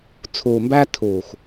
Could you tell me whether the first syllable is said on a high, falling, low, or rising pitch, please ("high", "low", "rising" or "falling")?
low